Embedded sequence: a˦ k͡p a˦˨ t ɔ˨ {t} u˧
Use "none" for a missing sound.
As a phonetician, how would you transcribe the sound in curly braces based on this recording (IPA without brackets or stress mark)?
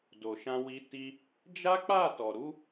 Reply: ɾ